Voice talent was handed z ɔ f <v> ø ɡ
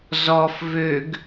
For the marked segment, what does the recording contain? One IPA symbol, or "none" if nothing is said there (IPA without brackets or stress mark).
v